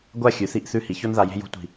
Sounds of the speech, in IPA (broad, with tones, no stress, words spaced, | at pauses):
ɡʷa˥˧ xʲʉ˩˧θi˥˧ʔθʉ˥˧ hi˩˧ço˥nða˧ je̤˥j o̤˥tʷi̤˧˩